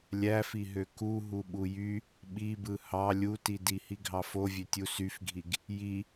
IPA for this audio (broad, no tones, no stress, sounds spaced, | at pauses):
lʲ æ f i ɦ ø k u ɦ u ɓ u j y | ɓ i b ɯ h ɑ lʲ u t i d i h i ɡʱ ɑ f o vʲ ø tʲ u s y f ɡʱ i ɡ | j i